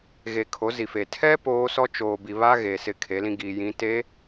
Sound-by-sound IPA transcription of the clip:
ɣe˨kʰo˨˦ zi˨fe˨ tʰɛ˦ poː˦sɔ˦ t͡ʃoː˨bi˨ βa˦ɣe˨ sɪ˦˨ kʰe˨˦lĩ˦ɡiː˨jĩ˨˦ te˨˦

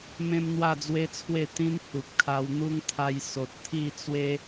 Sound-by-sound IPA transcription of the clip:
mẽ˦mn̪wa˥˧d͡zwe˦t͡sʰwe˥˧ t̪ĩ˦n hu˨p̚kʰa˧wn̪u˦ŋ t̪ʰa˧j so˨t̚ t̪ʰi˥˧t͡swe˦

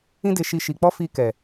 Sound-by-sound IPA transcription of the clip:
ĩ˦de˧ʃi˧ ʃi˨k͡pɔ˧ fi˧kɛ˨

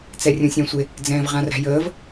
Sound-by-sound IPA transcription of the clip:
t͡sɛrʲũsʲɛ̃sʷe | d͡zɛ̃ːvʁãræ̤jəːv

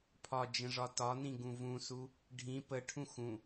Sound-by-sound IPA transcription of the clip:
pʰɒd͡ʒə̃ʐɒ tɒnĩɡũ vũsu | ɖʱĩ pəʈʰũ xũ

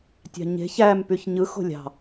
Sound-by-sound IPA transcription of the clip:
tʲɑ̤ɲe̤ç æm pyçɲɯ xo̤lʲɑ̤

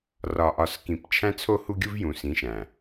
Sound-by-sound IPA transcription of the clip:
rɒ˨ʔɒ˨s kĩ˨p t͡ʃʰæ̃˦t͡sʰo˦hu˦ɡʲu˦v jũ˨sĩ˨˦ʃæ̃˨

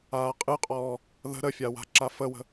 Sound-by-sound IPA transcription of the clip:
aːqʼɨqʼɔː | ðə̤ ɾəfʲa wa̤ǁafəwə̤

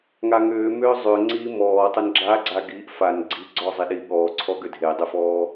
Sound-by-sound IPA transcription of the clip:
ŋaŋʏː mʏːzˤʏ ŋ͡ǀiːmɔːtˤʏn ɡ͡ǁaɡ͡ǀa ɡiːʔfan ɡ͡ǀi ɡ͡ǀɔzˤiɗi ɠɔːǀʰɔ ɡʏdʱedˤʏfɔː

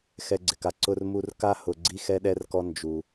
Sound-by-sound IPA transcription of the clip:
xɛ˧ɡ͡ǀɪ˩ka˧ ǀʊ˧rmu˧r ka˥hʊ˧ ɡ͡ǀi˥xɛ˥ɗɛ˥rkɔ˥ nd͡ʒu˧

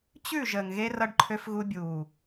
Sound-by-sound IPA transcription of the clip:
t͡ɕʉ˦˨ ʒəː˨ŋɣe˦ rʌ˦ɖǃʰø˦fɣu˦ bʲuː˨

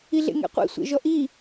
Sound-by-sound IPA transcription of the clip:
iɮḛŋḛqʷḭ sʷḛʒɔʔi

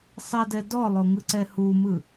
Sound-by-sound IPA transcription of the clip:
sˤɛdɛ dɔlˠoŋɯǀɛ humɯ

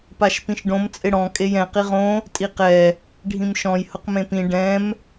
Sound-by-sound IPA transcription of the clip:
paʃpĩʃɖõm t͡sʼɪɽɔ̃ kʼejɛ̃ qiʁõ | tʼiqɛ | ɖʱĩmʃɔ̃j hʊqmẽpĩ ɖɛ̃m

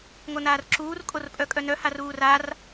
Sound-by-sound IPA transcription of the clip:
ŋonaːrǁuːr kʼorpʼœkʼœnœ haruːrar

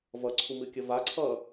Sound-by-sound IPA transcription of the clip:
vʌǀʰumɨkʲə vaǀʰʌː

